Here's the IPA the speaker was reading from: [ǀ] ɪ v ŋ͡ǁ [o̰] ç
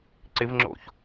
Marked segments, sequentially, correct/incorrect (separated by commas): correct, correct